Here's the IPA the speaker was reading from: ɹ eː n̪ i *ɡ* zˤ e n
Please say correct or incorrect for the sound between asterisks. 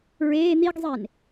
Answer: correct